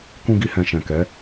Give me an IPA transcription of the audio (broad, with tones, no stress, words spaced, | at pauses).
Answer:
kũ˦ɡi˦hɛ̃˧ ʃɛ̃˨kɛ˨˦